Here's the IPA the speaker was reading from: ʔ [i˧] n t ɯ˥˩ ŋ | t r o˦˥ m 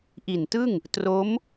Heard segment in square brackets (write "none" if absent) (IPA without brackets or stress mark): i˨˩